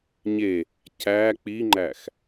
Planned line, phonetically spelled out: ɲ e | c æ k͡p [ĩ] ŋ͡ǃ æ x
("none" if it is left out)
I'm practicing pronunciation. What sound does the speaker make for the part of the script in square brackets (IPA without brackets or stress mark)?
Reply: i